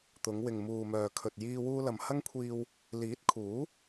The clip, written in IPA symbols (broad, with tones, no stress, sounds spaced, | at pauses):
t̪ ʊ˨˧ ŋ w ɪ˨ ŋ m uː˨ m œː˨ kʰ ɵ˨ t̚ j iː˧ w uː˧ l ɐ˨ m h ɐ˥ ŋ kʷʰ iː˧ w | l iː˨˥ t̚ kʰ uː˨˥